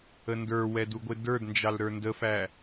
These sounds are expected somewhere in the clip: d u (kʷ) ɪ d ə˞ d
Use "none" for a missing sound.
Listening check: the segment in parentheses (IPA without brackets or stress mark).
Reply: ɡʷ